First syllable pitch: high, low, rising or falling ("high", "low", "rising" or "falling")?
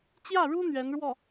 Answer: falling